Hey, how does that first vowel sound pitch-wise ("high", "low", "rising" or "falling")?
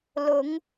rising